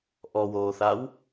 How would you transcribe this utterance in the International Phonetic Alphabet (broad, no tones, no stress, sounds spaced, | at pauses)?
ʔ ɔ w oː θ a w